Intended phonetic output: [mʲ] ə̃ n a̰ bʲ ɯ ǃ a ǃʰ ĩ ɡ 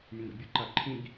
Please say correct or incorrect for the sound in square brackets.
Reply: correct